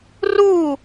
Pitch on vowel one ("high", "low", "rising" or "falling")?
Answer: falling